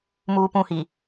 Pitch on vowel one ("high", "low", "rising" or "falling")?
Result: low